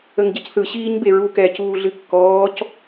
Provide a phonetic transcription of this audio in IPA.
ə ŋ ɟ ʌ c θ ɯ ɕ iː ɲ b e ɹ u k ɛː c uː ɮ ɨ kː ɔː c

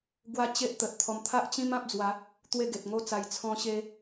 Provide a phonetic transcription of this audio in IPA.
ɡ w a˦ t͡ɕ e˦ ʔ t̪ ə˨ t̚ t̪ʰ ɔ˧ m t̪ʰ a˦ ʔ t͡ɕ ĩ˦ m ã˦ p̚ d͡z w a˨˦ | t̪ w e˥˧ ɡ e˨ t̚ ŋ o˦ t͡s a˧ j t͡sʰ ɔ̃˧ ɕ e˧

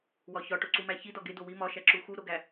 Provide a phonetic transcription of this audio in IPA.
w ɒ ç ɒ ʈ o ǀ u m æ ç i d ɒ ɡ e d o w i m ɒ ʃ æ ǁ u x u ɾ o ɡ æ

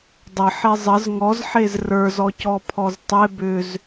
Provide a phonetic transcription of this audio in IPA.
dˤ ə ħ e zˤ ə z ŋ ɔ z ħ e z r ə˞ z ɔ c ɔ pʰ ɔ z tˤ e b ʏ z

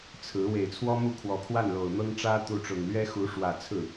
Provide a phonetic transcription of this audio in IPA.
t͡sʰ ɹ̩˧˥ w e˨˩ ɪ̯ t͡sʰ w ɔ˥ m u˥˩ kʰ w ɔ˨˩ kʰ w a˥˩ n l o˨˩ ʊ̯ n̪ ɤ˥ ŋ ʈ͡ʂ ä˥ t̪ u˧˥ ʈ͡ʂ ʊ˨˩ ŋ l ɥ ɛ˥ x u˧˥ ʂ w ä˨˩ t͡sʰ ɹ̩˥˩

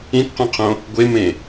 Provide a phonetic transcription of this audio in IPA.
ĩ t q ũ qʰ õ | ɡʷ e m ẽ

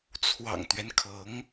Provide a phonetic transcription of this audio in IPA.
t͡sʰ w ɑ̰˨˩ ŋ t̪ ɥ ɛ˦ n kʰ ɤ˧˥ ŋ

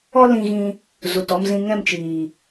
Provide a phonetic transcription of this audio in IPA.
ɔ˦ l ĩ˧ ɣ ĩ˧ | z u˨ t ɔ˧ m z ĩ˧ ŋ ɛ̃˦˨ m t͡ʃ iː˨

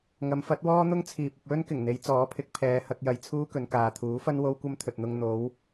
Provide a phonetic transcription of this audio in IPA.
ŋ ɐ˨˧ m f ɐ˨˥ t̚ w ɔː˥ n̪ ʊ˥ ŋ t͡sʰ iː˨ p̚ ɐ˧ p̚ w ɵ˥ n k ɪ˨˩ ŋ n̪ e˨˧ j t͡s ɔː˨˥ pʰ ɪ˨˥ k̚ pʰ ɛː˨˧ h ɐ˧ k̚ j ɐ˨ j t͡sʰ uː˥ k ɵ˨˧ n k aː˨ t̪ʰ uː˨˥ f ɐ˥ n w o˥ w kʷ ɐ˥ m t̪ʰ ɵ˨ t̚ n̪ ʊ˧ ŋ n̪ o˨˧ w

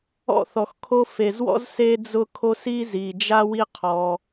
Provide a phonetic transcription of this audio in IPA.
ɔ̰˦˨ θ ɔ˨ x kʰ o˦ f e˨ z w ɔ̰˦ z s e˦ d͡z ʊ˦ kʰ o˦ s i˦ z i˨ d͡ʒ a˦ w i˦ qʰ ɔ˦

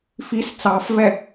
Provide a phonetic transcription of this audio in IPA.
f i s t͡s ɑ f v ɛ

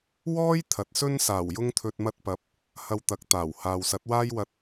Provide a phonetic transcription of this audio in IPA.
w ɔː˥ j t̪ʰ ɐ˨˥ t̚ s ɵ˥ n s aː˨˩ w j ʊ˧ ŋ t̪ʰ ɵ˨ t̚ m ɐ˧ t̚ p ɐ˨˥ p̚ | h ɐ˧ w t̪ ɐ˨˥ k̚ t̪ aː˨˩ w h aː˨ w s ɐ˨˥ t̚ w aː˥ j w ɐ˧ t̚

